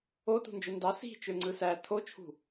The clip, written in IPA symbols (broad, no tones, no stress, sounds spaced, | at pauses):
o t ṳ n d͡ʒ ø n d ɑ s i̤ t͡ʃ ø ŋ͡ǀ ɯ s æ tʰ o t͡ʃʰ ṳ